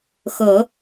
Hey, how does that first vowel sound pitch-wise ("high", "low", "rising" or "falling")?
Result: low